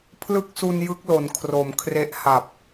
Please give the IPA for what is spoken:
pʰ l ɯ˦˥ k̚ s u˧ n j ɯ˦˥ k̚ l o˩˦ n kʰ r o˩˦ m kʰ r e˦˥ ʔ h a˨˩ p̚

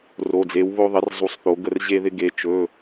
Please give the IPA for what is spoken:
r o˩˧˩ d͡z e˩˥ w β o˧ ðˤ ɪ˩˥ r zˤ u˩˥ sˤ θ o˩˥ ɡ ə˧ r ʑ e˧ ð ɪ˧ ɡ e˩˧˩ t͡ʃ ɵ˩˧˩

